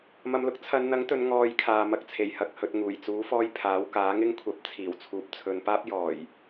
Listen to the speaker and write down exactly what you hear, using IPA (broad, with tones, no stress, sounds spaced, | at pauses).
m ɐ˧ m l ʊ˥ k̚ t͡sʰ ɐ˨˧ n n̪ ɐ˨˥ ŋ t̪ ɵ˨˧ n ŋ ɔː˧ j kʰ aː˨ m ɐ˧ k̚ t͡sʰ e˨˩ j h ɐ˧ k̚ h ɵ˨ t̚ ŋ uː˨˩ j t͡s uː˨˥ f ɔː˧ j pʰ aː˨˥ w k aː˨˥ ŋ ɪ˥ ŋ kʷʰ ɐ˧ p̚ t͡sʰ iː˨˩ w t͡sʰ uː˨ p̚ t͡sʰ ɵ˨˧ n p aː˥ p̚ j ɔː˨˩ j